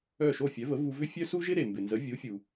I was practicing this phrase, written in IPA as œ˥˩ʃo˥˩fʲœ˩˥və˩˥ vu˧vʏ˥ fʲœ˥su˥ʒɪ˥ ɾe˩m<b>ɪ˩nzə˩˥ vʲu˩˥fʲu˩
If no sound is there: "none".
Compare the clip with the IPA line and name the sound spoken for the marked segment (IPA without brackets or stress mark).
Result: b